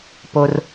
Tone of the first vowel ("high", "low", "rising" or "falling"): low